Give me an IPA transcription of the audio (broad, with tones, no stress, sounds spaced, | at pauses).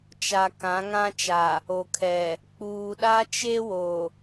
t͡ʃ a˨ k ã˨˦ ŋ ã˦ t͡ʃ a˨ | o˨ kʰ ɛ˨ | k͡p uː˨ ɗ a˦ t͡ʃ e˦ w o˨